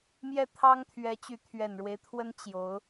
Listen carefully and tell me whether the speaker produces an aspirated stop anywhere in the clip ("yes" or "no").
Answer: yes